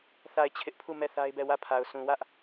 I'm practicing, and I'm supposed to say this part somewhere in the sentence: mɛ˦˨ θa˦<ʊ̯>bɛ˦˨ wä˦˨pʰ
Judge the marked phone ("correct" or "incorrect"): incorrect